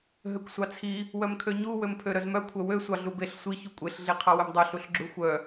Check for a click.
present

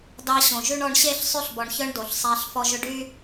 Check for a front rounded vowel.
present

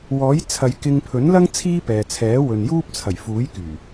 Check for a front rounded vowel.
present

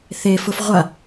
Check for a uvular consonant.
present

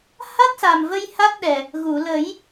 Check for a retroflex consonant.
absent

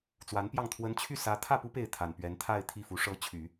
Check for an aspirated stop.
present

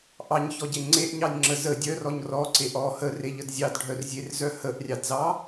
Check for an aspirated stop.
absent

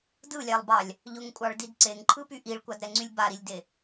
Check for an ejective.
present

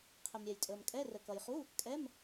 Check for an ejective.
present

